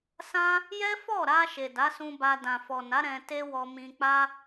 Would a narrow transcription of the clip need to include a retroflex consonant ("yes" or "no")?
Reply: no